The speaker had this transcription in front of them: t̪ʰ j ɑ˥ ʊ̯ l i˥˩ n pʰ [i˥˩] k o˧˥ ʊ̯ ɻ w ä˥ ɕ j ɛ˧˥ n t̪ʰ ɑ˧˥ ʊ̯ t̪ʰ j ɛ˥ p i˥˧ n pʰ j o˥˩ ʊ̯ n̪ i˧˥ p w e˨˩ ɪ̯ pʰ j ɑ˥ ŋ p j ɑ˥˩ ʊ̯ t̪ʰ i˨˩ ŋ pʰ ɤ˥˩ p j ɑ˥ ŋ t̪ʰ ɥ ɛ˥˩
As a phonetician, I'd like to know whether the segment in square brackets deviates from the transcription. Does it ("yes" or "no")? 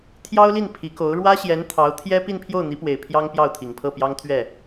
yes